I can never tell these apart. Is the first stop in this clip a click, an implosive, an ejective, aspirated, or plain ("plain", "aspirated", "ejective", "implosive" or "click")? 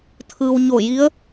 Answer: aspirated